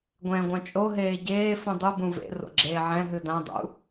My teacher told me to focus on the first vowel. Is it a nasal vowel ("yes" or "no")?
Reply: yes